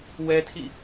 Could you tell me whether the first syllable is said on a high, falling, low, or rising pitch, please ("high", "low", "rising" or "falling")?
high